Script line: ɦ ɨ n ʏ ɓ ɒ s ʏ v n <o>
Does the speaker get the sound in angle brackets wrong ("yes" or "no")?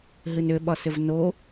no